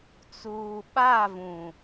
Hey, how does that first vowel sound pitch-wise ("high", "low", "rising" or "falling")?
low